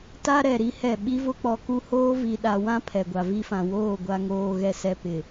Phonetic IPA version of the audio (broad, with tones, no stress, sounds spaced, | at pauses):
t a˦ ɾ ɛ˨ ɾ i˦ h ɛ˦˨ ɓ i˦ v ʊ˦ k͡p ɔ˨ k u˦ h oː˦ v i˨ ɗ a˨ w ã˦ pʰ ɛ˨ ɡʷ a˨ v i˦ f ã˨ w oː˦˨ ɡʷ a˨ ŋ oː˨ ɣ ɛ˦˨ s ɛ˦ p ɪ˨